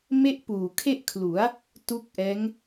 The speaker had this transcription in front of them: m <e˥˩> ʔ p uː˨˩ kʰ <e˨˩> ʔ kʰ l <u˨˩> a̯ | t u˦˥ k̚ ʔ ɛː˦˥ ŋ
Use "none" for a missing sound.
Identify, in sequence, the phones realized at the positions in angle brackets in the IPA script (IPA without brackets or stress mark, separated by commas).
e˥˩, e˥˩, u˩˦